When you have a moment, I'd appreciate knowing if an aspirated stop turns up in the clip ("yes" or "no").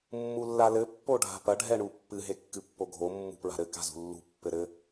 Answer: no